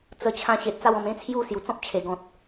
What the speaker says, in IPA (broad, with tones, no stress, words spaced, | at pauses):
t͡sə˧ t͡ɕʰã˧ ɕe˨t̚t͡sa˥˧wɔ̃˧m ẽ˦t͡sʰju˥˧ sju˨˩t͡sɔ̃˦p̚t͡ɕʰe˨˩ɡɔ̃˨t̚